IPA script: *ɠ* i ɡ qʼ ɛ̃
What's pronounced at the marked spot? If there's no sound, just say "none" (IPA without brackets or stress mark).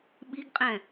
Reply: ɓ